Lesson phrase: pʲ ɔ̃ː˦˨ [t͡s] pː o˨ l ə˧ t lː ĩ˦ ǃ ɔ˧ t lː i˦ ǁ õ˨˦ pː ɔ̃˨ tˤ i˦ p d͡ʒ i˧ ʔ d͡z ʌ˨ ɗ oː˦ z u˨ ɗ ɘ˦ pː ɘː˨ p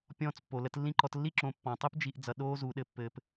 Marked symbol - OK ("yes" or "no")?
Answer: yes